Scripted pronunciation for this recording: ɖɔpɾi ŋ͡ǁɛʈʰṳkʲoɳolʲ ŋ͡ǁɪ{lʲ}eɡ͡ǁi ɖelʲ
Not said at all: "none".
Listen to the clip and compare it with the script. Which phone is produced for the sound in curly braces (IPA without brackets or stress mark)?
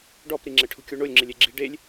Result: lʲ